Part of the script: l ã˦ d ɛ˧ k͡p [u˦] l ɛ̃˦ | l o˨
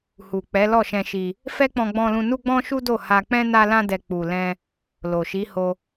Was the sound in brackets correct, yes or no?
no